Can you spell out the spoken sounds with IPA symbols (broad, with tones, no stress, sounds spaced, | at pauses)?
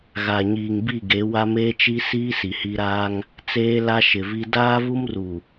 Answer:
ɣ a˨ ɲ iː˨ ŋ b i˦˨ ɡ e˨˦ w a˦ m eː˦ t͡ʃ i˦ s iː˦ s i˨ h i˦ ɾ aː˦ ŋ | t͡s eː˦ l a˦ ʃ ɪ˨ v i˦ d aː˦ v u˦ m r u˨